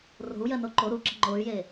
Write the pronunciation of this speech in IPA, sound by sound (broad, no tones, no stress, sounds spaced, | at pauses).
r o̤ u̯ j ɜ n o ǃ o ɾ u ǁ ə̤ ŋ͡ǃ o y̯ j e